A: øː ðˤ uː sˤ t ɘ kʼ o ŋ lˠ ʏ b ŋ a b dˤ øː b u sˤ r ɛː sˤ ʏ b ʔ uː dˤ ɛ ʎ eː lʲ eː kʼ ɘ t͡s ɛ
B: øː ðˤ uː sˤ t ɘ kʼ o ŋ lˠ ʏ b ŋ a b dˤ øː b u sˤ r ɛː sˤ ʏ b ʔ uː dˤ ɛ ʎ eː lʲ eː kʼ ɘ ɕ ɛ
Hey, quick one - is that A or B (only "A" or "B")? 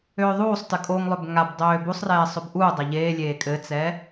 A